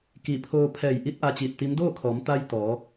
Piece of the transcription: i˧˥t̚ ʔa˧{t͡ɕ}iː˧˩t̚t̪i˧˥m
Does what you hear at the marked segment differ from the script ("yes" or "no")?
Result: no